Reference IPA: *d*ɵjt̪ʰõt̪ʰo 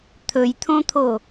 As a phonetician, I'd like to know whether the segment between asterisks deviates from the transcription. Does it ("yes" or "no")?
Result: yes